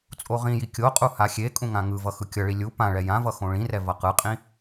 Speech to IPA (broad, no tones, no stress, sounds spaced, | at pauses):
t͡sʼ o ʁ ĩ j i kʲ o qʼ u h a xʲ e kʼ ũ ŋ ã ŋ ɯ v ʌ x ɯ kʲ ʌ ɭ i lʲ u p ã ɭ ɛ j ã v ʌ x õ ɭ ĩ r ɛ v ʌ q ɯ qʼ ĩ